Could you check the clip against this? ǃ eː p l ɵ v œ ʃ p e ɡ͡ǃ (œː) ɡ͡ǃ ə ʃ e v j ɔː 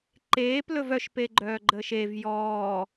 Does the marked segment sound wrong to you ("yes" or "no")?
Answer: no